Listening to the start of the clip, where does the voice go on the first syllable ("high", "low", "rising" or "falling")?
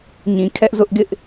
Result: low